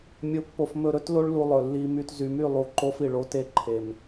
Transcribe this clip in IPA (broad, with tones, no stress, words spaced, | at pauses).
mʲo˨pːo˨f mɵ˨ɾɵ˦tlo˦ɭlu˨ lˠɵ˨lːi˦my˦t zy˨my˦˨lˠu˨ ǃo˦fi˨ɭ o˦te˦ǃʰe˨m